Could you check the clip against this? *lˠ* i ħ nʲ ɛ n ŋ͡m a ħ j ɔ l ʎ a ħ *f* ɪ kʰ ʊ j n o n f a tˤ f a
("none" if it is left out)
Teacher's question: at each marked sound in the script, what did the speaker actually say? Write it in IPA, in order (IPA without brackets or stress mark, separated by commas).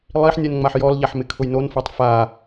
lˠ, m